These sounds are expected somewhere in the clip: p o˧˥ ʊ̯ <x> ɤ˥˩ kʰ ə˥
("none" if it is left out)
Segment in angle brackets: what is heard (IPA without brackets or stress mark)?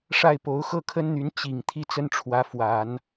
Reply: x